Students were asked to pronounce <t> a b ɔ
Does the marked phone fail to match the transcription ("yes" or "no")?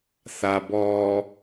yes